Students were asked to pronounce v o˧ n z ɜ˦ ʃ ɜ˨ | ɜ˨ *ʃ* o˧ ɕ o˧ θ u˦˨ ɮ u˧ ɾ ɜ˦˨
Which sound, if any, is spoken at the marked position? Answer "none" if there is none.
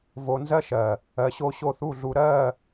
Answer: ɕ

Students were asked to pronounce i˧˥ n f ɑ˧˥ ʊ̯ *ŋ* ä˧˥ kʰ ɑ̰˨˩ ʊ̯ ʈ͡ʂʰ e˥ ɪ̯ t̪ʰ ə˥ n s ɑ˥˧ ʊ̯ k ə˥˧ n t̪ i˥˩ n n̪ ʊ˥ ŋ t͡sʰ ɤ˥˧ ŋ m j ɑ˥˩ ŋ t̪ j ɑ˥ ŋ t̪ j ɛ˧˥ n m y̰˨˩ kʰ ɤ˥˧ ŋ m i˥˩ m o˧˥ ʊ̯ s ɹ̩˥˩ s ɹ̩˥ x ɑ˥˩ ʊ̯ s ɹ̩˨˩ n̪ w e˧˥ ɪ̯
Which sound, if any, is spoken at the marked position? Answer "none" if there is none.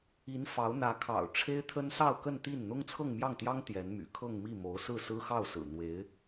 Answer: n̪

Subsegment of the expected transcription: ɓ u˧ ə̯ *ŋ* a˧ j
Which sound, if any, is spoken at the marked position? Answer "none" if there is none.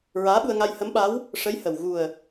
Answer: ŋ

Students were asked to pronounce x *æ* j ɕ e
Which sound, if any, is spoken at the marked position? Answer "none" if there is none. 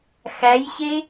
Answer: æ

